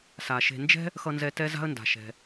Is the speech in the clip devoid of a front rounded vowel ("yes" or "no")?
yes